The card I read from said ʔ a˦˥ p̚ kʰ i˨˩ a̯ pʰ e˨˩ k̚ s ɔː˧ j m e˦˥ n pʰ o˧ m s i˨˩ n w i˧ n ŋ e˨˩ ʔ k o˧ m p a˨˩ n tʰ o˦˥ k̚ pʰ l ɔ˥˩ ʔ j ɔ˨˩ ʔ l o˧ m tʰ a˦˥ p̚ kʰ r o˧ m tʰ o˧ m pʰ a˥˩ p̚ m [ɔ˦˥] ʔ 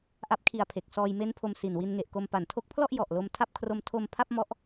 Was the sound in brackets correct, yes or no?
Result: yes